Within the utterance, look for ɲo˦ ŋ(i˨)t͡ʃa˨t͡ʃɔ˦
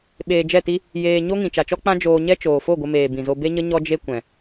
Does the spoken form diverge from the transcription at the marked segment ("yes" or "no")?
yes